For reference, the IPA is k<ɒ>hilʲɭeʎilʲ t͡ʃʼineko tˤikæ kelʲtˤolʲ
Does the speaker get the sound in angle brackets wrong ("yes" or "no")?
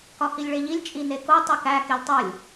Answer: no